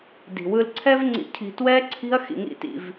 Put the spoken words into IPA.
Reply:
d i̤˨ w ɯ˧ l ǀʰ ɛ˧ v ŋ͡ǀ ḭ˨ cʰ i̤˨ t w ɛ˦ ǀʰ i̤˦ ɐ̯ x ḭ˧ ŋ ḭ˦ t ḭ˧ v

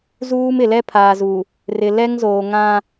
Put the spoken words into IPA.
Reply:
z uː˦ m ɪ˨ l ɛ˦ pʰ aː˨ z u˨ | r ɪ˨ l ɛ˦ ŋ z oː˨ ŋ ã˦

